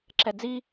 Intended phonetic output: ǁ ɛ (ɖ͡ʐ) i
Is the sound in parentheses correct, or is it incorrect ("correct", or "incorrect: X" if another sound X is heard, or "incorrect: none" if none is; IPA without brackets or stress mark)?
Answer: incorrect: d͡z